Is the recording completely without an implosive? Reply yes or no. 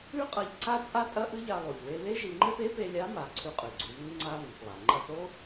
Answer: yes